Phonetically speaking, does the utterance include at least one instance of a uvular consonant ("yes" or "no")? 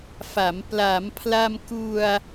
no